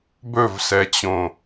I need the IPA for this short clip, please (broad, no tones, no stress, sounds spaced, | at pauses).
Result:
b ɵ v s ɛ t͡ɕ õ